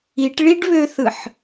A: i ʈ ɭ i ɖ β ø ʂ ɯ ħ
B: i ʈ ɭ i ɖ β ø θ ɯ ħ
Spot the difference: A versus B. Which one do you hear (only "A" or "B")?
B